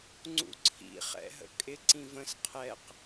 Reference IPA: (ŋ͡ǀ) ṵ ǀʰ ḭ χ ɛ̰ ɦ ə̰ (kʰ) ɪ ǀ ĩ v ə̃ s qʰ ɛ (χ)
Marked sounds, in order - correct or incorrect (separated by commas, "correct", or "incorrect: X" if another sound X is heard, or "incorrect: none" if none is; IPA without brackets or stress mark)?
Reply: correct, incorrect: kʼ, incorrect: q